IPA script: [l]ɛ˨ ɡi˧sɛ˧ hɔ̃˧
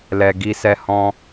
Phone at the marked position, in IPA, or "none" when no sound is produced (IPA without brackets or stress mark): l